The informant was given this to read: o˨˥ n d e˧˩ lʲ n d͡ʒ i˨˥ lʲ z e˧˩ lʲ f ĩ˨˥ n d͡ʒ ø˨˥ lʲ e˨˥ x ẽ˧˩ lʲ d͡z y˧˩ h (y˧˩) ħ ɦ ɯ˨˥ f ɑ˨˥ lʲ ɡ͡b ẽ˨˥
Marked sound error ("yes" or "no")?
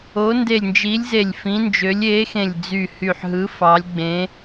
no